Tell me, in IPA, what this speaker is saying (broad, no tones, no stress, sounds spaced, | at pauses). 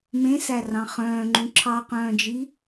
m ẽ s æ r ɑ̃ χ œ̃ː ŋ͡ǃ ũ ǁʰ ɑ q œ̃ː d͡ʒ i